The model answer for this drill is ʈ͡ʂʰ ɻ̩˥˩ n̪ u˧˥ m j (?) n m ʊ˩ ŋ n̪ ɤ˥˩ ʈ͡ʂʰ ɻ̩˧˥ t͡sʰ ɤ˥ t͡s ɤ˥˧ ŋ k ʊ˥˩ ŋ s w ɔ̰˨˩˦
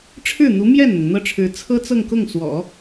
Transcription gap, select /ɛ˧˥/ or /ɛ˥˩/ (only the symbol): ɛ˥˩